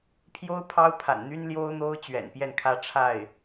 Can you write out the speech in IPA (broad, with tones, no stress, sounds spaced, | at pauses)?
pʰ j o˥ ʊ̯ pʰ ɑ˥ ʊ̯ pʰ a̰˨˩ n n̪ y˥ n l j o˥ ʊ̯ n̪ o˥ ʊ̯ t͡ɕ ɥ ɛ̰˨˩ n p j ɛ˥˧ n kʰ ä˥˧ ʈ͡ʂʰ a˥˩ ɪ̯